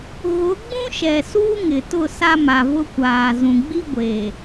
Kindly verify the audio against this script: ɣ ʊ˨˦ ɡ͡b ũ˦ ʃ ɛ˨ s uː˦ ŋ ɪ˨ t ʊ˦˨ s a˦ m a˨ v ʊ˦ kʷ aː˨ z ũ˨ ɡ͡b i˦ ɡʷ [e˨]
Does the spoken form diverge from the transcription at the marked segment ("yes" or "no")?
no